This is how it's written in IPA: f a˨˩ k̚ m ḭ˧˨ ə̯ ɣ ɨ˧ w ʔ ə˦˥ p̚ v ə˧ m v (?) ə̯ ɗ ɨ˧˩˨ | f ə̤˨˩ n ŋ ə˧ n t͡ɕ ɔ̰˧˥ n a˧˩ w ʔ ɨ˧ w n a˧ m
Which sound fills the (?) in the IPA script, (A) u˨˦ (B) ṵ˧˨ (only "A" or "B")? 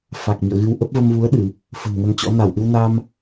A